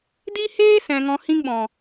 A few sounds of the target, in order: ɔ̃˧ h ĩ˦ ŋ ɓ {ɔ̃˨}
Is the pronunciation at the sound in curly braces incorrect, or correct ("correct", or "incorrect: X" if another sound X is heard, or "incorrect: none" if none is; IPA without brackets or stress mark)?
correct